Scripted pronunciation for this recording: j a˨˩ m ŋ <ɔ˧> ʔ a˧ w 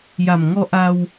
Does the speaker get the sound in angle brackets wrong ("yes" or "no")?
no